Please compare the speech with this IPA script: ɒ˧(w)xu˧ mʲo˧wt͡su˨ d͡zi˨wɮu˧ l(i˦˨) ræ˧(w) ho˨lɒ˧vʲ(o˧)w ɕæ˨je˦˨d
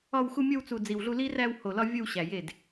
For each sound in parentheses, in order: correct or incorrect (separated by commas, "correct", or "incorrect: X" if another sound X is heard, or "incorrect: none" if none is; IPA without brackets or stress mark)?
correct, incorrect: i˦, correct, correct